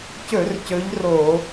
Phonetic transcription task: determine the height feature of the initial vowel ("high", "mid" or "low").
mid